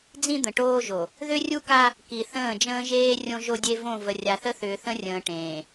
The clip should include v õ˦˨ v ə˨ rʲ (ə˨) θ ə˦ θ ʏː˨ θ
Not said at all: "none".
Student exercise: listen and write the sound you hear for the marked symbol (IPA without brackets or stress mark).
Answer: a˨